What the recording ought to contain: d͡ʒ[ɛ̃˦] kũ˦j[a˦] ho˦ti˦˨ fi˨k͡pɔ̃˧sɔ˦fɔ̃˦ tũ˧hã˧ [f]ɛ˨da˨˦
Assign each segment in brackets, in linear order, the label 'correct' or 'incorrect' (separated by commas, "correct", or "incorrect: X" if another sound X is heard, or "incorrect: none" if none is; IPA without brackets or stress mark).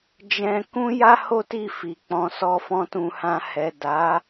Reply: incorrect: ɛ̃˧, correct, incorrect: h